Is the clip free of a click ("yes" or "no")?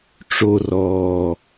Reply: yes